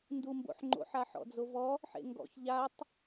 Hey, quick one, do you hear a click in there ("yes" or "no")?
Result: yes